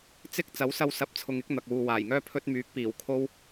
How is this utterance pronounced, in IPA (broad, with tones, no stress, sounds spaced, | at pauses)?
t͡s ɪ˥ k̚ t͡s ɐ˨˥ w s ɐ˧ w s ɐ˨˥ p̚ t͡sʰ ʊ˨ ŋ ɪ˨˥ k̚ n̪ ɐ˨ k̚ w uː˨ w aː˨˩ j ŋ œː˥ pʰ ɵ˧ t̚ m yː˨˥ k̚ p iː˨˩ w kʰ o˥ w